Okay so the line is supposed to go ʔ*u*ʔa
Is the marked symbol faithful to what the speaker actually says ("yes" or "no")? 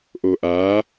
no